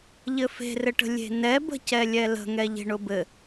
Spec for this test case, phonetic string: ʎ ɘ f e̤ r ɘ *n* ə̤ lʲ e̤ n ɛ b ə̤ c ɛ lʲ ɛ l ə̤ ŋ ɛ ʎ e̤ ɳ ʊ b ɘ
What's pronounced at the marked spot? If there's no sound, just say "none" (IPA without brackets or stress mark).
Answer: ʈ